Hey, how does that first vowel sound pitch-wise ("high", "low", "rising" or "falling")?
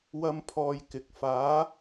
high